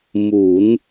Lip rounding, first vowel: rounded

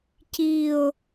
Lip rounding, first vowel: unrounded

